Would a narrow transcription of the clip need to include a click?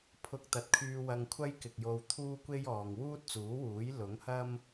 no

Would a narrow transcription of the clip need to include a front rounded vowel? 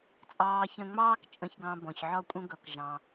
no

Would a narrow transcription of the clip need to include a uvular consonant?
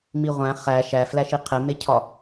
yes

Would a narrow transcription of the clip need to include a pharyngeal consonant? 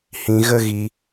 no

